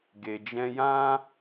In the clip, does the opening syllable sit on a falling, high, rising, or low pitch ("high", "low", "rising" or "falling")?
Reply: low